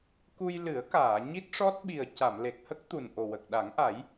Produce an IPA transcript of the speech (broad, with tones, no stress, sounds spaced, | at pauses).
k u˧ j l ɨ˨˩˦ ə̯ k aː˨˩˨ ɲ i˦˥ t̚ ʂ ɔ˦˥ t̚ ɓ i˨˩ ə̯ c a˨˩˨ m l e˨˩ k̚ h ə˦˥ k̚ t̪ u˨˩ n ʔ o˨˩ w ə˨˩ k̚ ɗ a˨˩˦ ŋ ʔ a˨˩˦ j